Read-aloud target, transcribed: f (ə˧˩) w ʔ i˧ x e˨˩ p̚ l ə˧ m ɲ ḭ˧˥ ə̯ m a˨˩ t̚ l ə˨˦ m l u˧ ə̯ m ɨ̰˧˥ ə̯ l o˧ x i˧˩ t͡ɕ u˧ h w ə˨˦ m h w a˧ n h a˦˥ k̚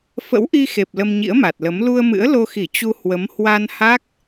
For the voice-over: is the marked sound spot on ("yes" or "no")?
no